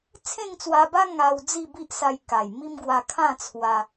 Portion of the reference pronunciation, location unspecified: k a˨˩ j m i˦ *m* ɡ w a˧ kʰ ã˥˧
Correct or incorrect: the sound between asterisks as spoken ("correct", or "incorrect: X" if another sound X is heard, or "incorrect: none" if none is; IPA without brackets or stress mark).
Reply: correct